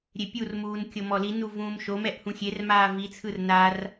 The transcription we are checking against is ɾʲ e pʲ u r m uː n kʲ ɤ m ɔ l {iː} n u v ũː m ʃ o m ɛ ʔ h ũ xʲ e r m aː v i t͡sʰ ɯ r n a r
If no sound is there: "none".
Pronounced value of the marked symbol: i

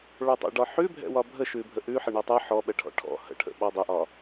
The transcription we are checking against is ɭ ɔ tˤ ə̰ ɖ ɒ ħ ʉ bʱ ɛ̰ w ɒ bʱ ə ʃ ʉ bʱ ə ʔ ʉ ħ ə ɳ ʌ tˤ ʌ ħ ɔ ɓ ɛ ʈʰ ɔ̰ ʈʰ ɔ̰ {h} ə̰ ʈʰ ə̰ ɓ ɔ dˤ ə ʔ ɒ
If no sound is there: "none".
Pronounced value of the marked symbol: h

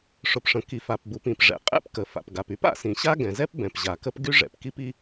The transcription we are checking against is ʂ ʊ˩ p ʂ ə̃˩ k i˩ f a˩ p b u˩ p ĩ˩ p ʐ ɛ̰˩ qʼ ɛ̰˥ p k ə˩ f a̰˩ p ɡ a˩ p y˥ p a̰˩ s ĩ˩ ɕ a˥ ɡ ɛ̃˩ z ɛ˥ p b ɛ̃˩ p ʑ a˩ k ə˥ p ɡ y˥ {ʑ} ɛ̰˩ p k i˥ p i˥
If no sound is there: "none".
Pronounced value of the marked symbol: ʐ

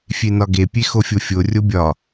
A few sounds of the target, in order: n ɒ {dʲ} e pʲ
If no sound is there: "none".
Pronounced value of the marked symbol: ɡ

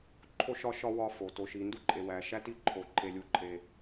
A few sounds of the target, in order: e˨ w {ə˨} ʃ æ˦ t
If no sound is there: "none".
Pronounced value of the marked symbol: æ˨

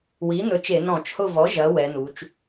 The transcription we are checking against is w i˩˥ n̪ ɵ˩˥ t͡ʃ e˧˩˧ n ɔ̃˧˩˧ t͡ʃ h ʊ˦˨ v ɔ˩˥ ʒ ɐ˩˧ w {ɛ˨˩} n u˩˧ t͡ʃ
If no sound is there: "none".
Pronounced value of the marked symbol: ɛ˩˧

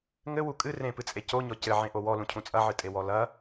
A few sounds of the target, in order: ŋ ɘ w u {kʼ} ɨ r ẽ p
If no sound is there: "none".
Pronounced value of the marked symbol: kʼ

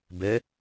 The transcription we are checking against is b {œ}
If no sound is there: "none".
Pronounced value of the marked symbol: ɛ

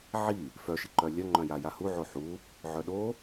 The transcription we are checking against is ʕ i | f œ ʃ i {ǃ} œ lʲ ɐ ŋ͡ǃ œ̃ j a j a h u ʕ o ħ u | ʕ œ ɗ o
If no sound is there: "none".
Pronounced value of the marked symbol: ǃ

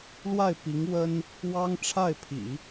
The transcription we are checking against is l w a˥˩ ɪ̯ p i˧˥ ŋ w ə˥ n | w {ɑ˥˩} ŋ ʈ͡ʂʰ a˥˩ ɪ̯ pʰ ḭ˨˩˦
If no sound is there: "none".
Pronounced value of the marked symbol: ɑ˥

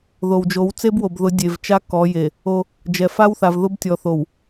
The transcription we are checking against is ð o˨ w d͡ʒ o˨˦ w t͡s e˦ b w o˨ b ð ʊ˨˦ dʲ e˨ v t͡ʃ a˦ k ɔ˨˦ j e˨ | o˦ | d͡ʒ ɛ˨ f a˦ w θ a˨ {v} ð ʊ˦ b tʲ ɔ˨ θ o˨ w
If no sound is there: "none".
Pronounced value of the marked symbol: v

